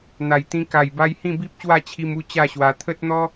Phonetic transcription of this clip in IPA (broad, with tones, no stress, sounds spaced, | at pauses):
n̪ a˨˩ j t̪ ĩ˧ k a˨˩ j b a˧ j h ĩ˥˧ b i˦ p̚ ɕ w a˥˧ t͡ɕʰ i˧ m u˥˧ t͡ɕ a˥˧ ɕ w a˧ t̪ʰ ə˦ t̚ n̪ ɔ˦